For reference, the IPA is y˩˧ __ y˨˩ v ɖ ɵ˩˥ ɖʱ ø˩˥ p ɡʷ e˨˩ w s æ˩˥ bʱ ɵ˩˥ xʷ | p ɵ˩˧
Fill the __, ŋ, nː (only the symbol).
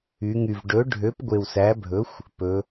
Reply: ŋ